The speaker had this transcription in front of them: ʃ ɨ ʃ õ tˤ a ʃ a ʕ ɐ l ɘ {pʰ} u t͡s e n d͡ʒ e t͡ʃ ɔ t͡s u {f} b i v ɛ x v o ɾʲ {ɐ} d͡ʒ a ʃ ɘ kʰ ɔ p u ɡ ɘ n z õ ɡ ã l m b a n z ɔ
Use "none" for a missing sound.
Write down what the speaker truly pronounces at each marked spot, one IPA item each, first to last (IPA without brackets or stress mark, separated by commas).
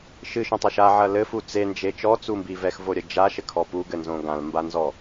f, m, ɐ